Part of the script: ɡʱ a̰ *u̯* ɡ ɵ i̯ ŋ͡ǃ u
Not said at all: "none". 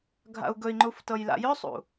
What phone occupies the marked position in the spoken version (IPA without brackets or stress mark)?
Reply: u̯